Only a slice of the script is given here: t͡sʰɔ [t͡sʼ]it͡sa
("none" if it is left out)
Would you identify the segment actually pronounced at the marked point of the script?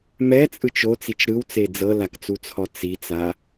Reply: t͡s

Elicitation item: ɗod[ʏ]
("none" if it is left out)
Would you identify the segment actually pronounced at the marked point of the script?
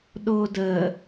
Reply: ə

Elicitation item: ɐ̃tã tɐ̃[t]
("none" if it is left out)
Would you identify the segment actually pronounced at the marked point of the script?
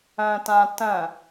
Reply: none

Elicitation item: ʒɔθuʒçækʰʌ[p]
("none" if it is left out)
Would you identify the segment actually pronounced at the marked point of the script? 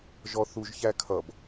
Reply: b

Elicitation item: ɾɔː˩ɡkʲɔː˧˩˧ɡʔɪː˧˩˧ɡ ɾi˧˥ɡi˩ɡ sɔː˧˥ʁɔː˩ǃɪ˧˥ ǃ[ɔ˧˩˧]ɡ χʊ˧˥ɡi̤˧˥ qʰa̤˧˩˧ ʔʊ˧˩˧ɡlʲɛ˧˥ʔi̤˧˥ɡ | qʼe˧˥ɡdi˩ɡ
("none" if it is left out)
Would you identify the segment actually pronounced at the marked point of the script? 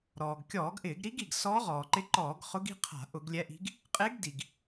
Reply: ɔː˧˩˧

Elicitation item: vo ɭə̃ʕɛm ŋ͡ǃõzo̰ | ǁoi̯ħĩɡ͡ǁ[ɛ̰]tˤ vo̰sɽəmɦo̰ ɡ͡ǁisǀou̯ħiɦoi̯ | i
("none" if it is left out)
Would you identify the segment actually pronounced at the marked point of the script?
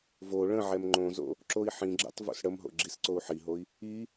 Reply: ɛ̰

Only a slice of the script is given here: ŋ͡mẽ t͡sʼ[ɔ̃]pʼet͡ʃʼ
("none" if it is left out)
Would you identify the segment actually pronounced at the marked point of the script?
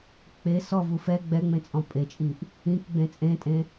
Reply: ɔ̃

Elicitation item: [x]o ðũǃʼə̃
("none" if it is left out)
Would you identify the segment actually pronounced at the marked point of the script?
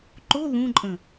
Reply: ǃ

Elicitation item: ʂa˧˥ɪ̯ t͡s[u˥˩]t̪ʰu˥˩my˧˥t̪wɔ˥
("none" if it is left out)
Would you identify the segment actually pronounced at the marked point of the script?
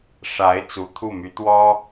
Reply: u˧˥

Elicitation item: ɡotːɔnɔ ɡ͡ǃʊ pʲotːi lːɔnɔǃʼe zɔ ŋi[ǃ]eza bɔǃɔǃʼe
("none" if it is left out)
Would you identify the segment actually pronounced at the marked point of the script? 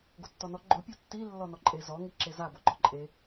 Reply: ǁ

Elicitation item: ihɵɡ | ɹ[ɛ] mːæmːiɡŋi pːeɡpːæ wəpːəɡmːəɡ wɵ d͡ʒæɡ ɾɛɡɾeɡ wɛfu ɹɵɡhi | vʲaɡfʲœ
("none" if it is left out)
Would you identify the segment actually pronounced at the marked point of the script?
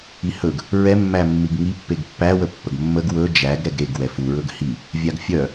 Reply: ɛ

